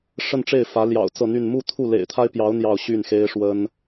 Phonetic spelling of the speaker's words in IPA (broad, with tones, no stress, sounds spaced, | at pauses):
ʂ ə˥˧ n ʈ͡ʂ e˥˩ ɪ̯ f ä˧˥ l j ɑ̰˨˩ ʊ̯ t͡s ɤ˥˧ n̪ y˥˧ n m u˥˧ t̪ʰ u˥˩ l ḛ˨˩ ɪ̯ t̪ʰ a˥ ɪ̯ p j ɑ˧˥ ʊ̯ n̪ j ɑ˥˧ ʊ̯ ɕ y˥˩ n x e˥ ɪ̯ ʂ w ə˥ n